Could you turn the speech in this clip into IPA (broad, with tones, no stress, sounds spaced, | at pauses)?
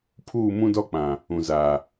pʰ uː˦˨ m ũ˦ d ɔ˦ k͡p ã˨ | ũ˨ z aː˨